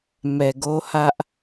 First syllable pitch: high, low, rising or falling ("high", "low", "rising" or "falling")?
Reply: low